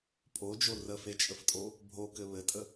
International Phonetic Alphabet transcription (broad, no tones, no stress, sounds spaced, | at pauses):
pʼ o d͡ʒ o r ə f e t͡ʃʼ ə f tʼ o | bʱ o k ɘ β ɘ tʼ ə